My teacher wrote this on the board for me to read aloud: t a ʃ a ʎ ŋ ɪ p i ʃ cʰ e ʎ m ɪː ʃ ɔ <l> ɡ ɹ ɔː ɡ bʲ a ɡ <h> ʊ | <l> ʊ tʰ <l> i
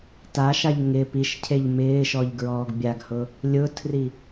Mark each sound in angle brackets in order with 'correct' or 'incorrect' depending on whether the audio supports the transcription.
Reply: incorrect, correct, incorrect, incorrect

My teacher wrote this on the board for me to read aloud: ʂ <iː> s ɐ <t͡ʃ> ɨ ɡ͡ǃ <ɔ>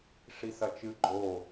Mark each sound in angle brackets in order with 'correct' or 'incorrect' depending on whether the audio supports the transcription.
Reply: incorrect, correct, incorrect

